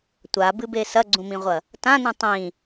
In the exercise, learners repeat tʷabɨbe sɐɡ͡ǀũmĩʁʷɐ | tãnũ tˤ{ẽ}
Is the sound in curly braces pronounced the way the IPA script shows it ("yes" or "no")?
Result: no